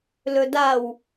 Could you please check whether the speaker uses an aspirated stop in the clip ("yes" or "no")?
no